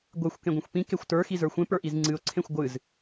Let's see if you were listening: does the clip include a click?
yes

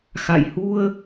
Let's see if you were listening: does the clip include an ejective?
no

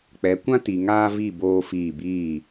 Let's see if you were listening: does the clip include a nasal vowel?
yes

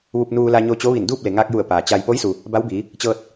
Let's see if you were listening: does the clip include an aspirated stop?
no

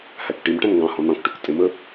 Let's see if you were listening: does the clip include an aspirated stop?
no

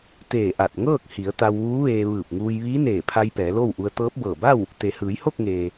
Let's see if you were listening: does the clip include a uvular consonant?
no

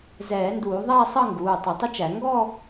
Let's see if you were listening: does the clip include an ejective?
no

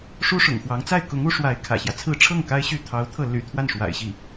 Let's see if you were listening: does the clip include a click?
no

